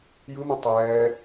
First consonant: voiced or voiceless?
voiced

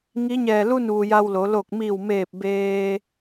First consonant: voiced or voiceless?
voiced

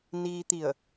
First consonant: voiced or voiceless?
voiced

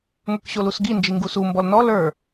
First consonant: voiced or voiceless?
voiced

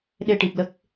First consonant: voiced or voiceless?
voiced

